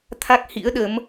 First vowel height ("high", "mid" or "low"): low